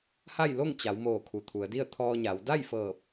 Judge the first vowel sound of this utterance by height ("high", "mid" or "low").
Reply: low